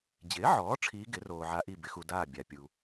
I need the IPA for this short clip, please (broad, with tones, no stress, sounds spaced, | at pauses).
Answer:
d͡ʑ ɪː˩˥ ʕ ɔː˩˥ ʈ͡ʂʰ iː˧˥ ɡ ɪ˩˥ r oː˨ ʕ a˧˥ ʔ i˥˨ b ɪ˨˩˦ x u˨ d aː˥˨ bʲ a˨ pʲ u˨